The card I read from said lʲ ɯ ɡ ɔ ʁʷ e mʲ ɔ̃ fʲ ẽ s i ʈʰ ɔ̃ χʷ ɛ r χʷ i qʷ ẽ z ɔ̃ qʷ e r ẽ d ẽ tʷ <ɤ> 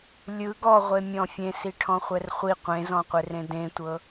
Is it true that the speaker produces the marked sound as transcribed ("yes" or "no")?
yes